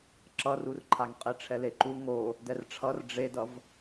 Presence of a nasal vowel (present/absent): absent